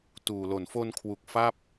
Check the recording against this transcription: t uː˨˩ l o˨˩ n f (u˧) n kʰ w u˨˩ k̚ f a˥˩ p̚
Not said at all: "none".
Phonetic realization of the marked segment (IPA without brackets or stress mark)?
o˧